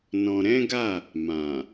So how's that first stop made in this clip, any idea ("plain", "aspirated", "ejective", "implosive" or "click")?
plain